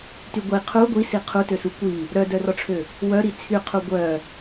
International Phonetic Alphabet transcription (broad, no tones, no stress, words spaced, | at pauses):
tyɡʷi qʰu ɡʷisi qʰutøsu kʷi | ɾœdœrɔʈ͡ʂʰø | wœɾi t͡sʰyqʰu ɡʷœ